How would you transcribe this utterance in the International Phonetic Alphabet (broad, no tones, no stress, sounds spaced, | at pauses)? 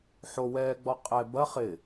ħ o w ɛː ɡ͡b ɔ qʼ ɛ b ɐ χ ɪ